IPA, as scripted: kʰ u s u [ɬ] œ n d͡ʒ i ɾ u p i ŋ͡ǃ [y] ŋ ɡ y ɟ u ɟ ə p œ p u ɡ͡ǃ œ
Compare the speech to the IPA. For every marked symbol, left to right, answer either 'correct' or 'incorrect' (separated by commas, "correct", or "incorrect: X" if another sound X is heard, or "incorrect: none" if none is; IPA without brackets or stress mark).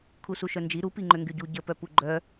incorrect: ʃ, incorrect: ø